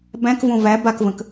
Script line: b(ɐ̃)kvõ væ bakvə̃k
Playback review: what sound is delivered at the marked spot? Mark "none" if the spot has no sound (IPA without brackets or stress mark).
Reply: æ̃